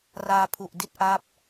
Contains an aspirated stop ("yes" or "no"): yes